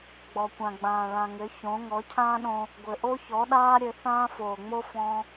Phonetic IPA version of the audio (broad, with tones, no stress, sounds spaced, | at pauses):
ɡ͡b ɔ˨ kʷ ã˨ ɡ͡b ãː˨ ɭ ã˨ ŋ ɘ˨˦ ç õ˨˦ ŋ ɔ˨˦ cʰ ãː˦ ɗ õ˧ | ɡʷ ɘ˨ ʔ o˦ ç ɔ˨˦ ɗ aː˦ ɾʲ ɘ˧ θ ãː˦ f oː˨ ŋ͡m o˦ f ɔ̃˦